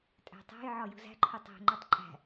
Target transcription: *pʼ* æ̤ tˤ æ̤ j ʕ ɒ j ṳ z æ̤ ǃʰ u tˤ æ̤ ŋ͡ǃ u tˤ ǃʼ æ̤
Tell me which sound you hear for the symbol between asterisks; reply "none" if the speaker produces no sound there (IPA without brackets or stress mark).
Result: tʼ